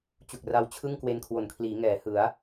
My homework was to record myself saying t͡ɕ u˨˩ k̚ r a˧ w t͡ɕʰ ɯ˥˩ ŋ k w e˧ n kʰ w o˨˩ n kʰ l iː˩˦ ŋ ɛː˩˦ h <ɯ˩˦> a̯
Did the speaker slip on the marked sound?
no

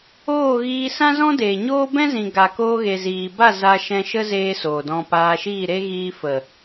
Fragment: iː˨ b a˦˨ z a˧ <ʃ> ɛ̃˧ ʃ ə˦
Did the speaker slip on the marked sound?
no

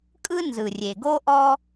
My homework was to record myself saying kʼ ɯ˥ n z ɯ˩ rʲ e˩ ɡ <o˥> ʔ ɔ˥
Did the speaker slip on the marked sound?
no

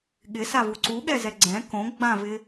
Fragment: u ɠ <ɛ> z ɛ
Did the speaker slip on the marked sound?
no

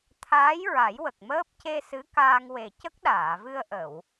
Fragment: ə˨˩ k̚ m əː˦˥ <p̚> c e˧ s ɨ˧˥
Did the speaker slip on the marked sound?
no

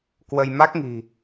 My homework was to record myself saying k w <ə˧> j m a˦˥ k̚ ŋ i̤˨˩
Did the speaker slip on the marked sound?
no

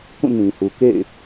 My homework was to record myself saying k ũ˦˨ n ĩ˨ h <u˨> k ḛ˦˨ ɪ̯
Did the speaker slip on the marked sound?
no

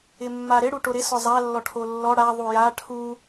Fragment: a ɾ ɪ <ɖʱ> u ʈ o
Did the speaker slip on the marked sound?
yes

